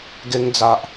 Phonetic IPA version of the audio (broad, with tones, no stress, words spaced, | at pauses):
ɡe˧ŋd͡za˨ʔ